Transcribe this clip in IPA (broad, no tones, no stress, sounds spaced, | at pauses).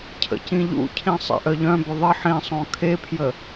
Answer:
cʰ ə̰ c ĩ ʎ ṵ cʰ ĩ sˤ ḛ ʔ œ ʎ œ̃ b ʏ ðˤ ə ħ ĩ sˤ õ kʰ e pʰ j ə